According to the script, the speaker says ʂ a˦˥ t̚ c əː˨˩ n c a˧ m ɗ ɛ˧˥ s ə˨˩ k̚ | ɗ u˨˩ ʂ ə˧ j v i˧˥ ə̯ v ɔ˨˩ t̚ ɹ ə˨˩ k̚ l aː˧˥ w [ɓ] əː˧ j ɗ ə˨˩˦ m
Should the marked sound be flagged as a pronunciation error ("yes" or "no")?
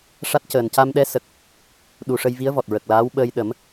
no